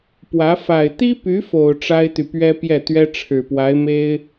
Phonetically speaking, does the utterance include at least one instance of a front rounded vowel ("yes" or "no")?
yes